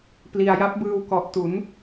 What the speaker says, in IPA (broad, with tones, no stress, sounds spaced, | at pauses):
p l i˧ a̯ j a˦˥ p̚ b ɯː˧ w k ɔ˨˩ ʔ t u˩˦ n